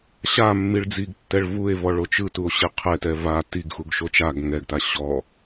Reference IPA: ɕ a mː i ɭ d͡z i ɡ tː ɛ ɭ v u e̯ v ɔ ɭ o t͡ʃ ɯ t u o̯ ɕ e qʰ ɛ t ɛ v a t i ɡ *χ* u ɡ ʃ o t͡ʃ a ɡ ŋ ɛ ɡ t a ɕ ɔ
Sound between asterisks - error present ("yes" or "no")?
yes